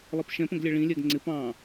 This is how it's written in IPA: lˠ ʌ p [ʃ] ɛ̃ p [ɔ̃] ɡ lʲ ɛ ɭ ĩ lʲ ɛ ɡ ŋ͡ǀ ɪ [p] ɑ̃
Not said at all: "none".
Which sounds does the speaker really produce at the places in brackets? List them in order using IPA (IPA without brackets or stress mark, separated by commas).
ʃ, ə̃, p